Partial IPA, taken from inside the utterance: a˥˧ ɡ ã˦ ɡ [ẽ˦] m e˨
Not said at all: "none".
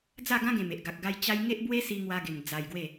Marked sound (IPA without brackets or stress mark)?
ẽ˨˩